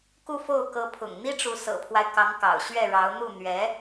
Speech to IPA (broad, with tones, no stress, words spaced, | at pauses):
ku˥˧fo˥˩ʊ̯kɤ˧˥ pʰʊ̰˨˩ŋn̪i˥ʈ͡ʂu˧˥ sɤ̰˨˩pʰwa˦ɪ̯ kɑ˧˥ŋkɑ̰˨˩ʊ̯ ɕɥɛ˥˩ɻɑ˧˥ʊ̯ n̪u˥˩n̪ɥɛ˧˥